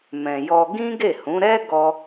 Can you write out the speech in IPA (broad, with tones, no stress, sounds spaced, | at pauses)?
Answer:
m ɛ̃˨ j ɔ˧ ɡ ĩ˦ ɡ e˦˨ h ũ˨˦ ɾ ɛ˦ ɡ ɔ˦